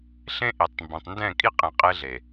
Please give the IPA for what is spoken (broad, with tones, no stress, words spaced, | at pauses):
ɬẽ˦ʔi˨tˤmbẽ˨tˤndɛ̃˦˨ kʼi˦qʼẽ˨ qʼe˦ɮe˨